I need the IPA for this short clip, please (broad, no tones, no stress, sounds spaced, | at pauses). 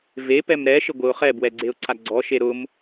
v e p ɛ m ɾ ɛ ʃ ɪ ɡʷ ɪ ʊ̯ χ ɛ b w ɛ ɡ͡ǀ e ʊ̯ ǀʰ a ɡ͡ǀ ɔ ʃ e ɾ ʊ m